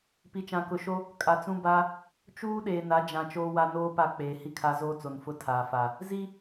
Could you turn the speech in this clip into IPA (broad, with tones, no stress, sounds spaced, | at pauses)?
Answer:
p i˨ t͡ʃ ã˨ k ʊ˨ ʃ o˦ | kʼ a˨ t͡s ũ˦ b a˦ | t͡ʃ uː˦ ɗ eː˨ n a˨˦ d͡ʒ ã˨ t͡ʃ oː˦ w a˦ n oː˦ p a˦˨ k͡p eː˨ h i˦ kʰ a˦ z oː˦ t͡s o˨ n f ʊ˦ tʰ aː˨ f a˨ | z i˦